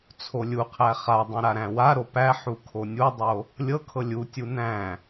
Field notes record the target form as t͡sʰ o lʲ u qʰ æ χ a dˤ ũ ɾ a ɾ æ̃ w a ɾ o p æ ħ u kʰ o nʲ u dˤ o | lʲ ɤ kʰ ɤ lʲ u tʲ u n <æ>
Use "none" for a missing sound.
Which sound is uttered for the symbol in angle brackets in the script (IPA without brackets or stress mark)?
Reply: æ̃